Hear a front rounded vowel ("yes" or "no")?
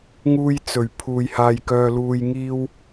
yes